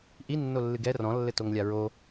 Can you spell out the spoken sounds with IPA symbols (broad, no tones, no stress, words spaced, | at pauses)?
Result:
ʔinːolːɨɡ ɛ rɔ̃lːɘtoŋlʲa ɹo